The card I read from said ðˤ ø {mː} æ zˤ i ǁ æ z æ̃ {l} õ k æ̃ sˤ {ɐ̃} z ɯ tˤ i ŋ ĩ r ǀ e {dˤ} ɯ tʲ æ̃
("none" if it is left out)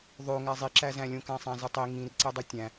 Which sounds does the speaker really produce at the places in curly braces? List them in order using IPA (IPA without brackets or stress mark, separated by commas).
ŋ, lʲ, æ̃, dˤ